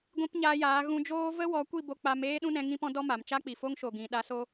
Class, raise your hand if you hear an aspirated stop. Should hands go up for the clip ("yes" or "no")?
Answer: no